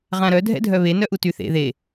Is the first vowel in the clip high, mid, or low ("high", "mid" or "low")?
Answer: low